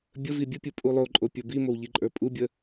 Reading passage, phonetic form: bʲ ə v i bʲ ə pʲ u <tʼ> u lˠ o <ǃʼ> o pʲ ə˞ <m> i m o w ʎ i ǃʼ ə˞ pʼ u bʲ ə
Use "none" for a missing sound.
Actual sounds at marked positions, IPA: pʼ, ǃʼ, b

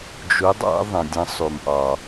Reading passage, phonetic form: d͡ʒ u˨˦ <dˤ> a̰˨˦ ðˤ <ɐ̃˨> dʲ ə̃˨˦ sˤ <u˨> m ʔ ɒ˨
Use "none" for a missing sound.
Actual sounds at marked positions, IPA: dˤ, ə̃˨, u˨

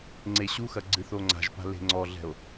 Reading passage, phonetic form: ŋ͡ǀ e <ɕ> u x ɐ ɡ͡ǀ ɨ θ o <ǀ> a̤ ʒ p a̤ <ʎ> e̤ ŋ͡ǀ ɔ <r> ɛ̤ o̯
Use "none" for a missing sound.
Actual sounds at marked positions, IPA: ɕ, ŋ͡ǀ, l, ɮ

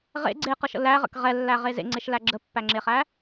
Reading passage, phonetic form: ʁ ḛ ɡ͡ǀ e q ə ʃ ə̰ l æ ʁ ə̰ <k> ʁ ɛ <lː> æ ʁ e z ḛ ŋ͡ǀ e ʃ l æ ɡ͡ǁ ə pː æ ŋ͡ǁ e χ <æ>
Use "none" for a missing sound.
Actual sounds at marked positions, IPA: k, lː, æ

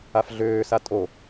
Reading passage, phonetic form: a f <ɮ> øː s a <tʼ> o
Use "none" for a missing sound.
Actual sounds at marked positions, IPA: ɮ, tʼ

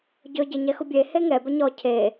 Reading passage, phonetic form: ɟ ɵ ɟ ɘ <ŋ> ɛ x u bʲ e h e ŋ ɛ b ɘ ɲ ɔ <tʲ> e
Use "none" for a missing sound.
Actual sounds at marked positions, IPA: ɲ, cʰ

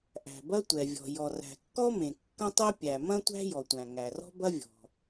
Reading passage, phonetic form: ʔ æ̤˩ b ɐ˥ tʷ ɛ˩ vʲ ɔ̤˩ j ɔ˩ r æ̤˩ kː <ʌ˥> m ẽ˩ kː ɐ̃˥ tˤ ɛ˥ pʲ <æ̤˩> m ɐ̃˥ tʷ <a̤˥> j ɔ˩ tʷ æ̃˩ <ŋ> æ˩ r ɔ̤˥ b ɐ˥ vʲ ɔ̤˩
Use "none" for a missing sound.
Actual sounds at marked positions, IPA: ɔ˥, æ˩, æ̤˥, ŋ

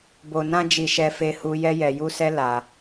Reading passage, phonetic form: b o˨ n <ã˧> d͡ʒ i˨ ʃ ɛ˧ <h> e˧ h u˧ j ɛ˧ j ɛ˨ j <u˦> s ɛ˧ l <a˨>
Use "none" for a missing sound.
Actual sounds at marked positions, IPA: ã˧, f, u˧, a˨

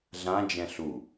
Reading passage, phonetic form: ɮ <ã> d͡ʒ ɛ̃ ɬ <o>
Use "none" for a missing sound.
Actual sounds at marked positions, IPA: ã, u

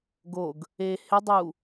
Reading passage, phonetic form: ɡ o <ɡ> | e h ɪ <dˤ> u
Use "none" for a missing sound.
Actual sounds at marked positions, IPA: ɡ, dˤ

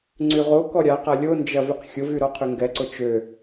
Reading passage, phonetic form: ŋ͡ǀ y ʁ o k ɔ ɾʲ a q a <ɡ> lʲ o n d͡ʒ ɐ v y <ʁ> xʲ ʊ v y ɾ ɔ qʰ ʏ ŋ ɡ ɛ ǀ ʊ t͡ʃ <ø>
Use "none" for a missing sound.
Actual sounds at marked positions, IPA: none, q, ø

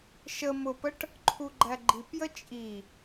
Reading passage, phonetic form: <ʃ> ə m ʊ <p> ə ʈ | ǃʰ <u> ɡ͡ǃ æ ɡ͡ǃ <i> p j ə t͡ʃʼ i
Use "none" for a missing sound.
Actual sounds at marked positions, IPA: ʃ, p, u, i

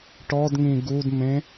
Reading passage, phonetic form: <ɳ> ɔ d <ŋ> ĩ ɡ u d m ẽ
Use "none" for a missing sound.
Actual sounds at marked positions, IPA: ʈ, ŋ

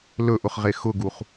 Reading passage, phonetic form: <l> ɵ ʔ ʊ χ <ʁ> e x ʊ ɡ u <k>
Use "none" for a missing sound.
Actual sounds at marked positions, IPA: l, ʁ, χ

